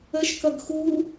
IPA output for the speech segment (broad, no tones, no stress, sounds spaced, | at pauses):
ə ʃ k ʌ ɡ x u